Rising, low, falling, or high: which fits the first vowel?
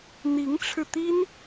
rising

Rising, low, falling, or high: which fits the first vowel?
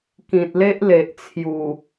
low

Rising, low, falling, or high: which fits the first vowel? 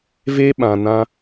high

